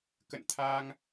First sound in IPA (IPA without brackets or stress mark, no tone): k